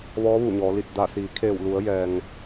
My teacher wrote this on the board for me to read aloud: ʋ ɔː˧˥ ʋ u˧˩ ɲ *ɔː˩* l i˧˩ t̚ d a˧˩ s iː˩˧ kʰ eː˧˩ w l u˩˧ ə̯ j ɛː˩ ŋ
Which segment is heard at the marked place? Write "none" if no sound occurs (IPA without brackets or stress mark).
ɔː˩˧